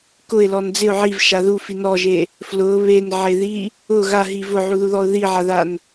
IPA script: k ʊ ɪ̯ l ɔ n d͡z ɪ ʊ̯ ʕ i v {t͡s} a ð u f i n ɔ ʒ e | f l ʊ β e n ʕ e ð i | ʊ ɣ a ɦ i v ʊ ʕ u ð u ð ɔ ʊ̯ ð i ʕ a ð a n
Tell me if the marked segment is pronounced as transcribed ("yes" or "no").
no